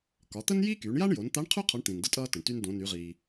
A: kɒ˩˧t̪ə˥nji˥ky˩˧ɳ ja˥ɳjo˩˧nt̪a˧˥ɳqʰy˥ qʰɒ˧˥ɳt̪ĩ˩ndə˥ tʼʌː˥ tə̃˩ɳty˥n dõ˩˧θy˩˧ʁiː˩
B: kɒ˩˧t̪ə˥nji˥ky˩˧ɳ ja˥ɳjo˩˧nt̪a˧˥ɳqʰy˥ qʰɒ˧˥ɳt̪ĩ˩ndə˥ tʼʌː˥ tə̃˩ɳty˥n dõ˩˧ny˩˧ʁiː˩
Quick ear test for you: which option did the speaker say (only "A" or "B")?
B